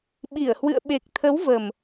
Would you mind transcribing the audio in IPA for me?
ɓ i˧˩ ə̯ h w ɨ̰˧˨ ə̯ ɓ e˨˩ k̚ t̪ʰ ə˨˦ w v ə˨˩ m

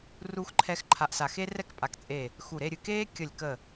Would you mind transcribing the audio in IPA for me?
r u˧ x ǃʰ ɛ˧ x ǃʰ a˧˩ ʔ s a˧˩ x e˥ r ɛ˥ k pʼ a˧˩ k t͡sʼ eː˧˩ | x u˧˩ ɾ e˥˧ ɾʲ ɨ˧ k eː˥ kʲ ə˧˩ lʲ k ə˧˩

